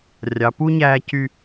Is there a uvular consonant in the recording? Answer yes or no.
no